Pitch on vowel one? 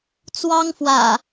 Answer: high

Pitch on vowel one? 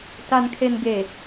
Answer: low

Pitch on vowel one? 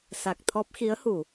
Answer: low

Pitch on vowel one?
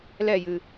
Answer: falling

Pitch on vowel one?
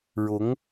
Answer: rising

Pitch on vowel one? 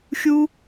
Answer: high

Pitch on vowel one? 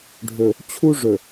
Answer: low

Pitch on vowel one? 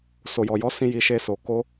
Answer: low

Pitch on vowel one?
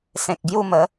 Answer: low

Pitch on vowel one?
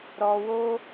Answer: low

